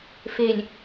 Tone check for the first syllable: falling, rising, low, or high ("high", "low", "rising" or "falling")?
low